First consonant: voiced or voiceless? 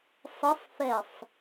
voiceless